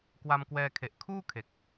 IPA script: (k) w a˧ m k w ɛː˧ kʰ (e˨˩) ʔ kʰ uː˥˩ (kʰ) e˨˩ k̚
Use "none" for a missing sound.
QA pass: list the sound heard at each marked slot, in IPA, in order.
k, e˨˩, kʰ

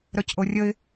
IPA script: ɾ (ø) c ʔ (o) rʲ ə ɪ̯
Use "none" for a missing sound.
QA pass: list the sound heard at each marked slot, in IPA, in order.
œ, o

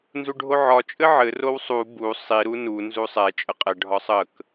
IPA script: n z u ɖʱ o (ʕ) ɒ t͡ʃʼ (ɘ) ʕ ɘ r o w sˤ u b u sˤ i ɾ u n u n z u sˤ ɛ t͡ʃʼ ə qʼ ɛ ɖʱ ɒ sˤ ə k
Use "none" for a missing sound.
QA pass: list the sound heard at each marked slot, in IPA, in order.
ʕ, ɘ

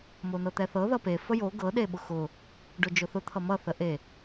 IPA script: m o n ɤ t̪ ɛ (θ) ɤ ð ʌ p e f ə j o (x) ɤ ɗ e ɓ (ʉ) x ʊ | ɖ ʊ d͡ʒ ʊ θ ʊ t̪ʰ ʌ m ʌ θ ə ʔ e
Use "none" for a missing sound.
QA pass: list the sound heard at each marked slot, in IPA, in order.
θ, ɡ, ʊ

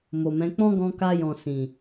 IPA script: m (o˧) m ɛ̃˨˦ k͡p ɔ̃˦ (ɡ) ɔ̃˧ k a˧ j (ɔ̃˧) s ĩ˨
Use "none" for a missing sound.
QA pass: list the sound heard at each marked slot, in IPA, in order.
o˨, ɡ, ɔ̃˨

